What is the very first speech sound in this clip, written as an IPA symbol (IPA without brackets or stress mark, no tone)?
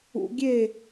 ṵ